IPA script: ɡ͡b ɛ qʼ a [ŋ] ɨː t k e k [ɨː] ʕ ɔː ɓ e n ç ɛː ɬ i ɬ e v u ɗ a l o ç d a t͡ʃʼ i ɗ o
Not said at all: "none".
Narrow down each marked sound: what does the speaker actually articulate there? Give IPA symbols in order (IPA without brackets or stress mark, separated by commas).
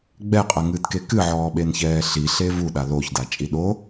ŋ, ɨ